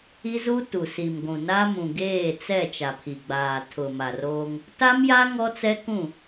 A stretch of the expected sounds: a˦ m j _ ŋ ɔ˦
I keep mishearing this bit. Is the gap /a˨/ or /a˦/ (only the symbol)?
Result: a˦